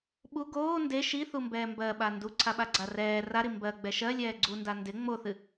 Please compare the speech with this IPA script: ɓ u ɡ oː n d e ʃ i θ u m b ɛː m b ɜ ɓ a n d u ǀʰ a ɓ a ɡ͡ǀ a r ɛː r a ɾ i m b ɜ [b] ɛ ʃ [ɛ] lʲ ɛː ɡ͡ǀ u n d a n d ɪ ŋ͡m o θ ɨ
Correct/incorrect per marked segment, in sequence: incorrect, incorrect

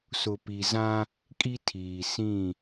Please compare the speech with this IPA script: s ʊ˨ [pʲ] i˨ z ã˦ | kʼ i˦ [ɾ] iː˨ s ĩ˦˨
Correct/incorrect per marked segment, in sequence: incorrect, incorrect

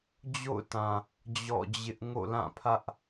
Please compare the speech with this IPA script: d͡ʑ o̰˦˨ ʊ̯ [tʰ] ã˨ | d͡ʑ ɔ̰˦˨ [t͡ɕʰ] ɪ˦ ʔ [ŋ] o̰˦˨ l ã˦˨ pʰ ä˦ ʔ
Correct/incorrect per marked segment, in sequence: incorrect, incorrect, correct

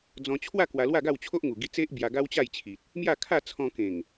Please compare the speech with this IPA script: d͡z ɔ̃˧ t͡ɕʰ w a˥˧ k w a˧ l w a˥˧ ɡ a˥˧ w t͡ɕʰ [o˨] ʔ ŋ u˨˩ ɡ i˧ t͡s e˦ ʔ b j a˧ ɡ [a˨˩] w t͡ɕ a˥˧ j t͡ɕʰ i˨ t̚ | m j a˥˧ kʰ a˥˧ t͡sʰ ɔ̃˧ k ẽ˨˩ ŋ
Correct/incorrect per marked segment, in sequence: incorrect, incorrect

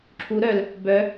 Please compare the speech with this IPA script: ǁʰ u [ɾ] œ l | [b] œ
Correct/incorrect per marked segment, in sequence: correct, correct

